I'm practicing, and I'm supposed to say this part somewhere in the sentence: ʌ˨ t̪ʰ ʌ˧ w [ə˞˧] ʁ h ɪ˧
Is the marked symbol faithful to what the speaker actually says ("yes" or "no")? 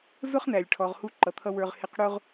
yes